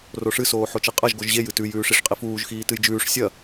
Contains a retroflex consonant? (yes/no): yes